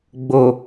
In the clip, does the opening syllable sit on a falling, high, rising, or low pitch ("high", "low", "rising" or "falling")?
low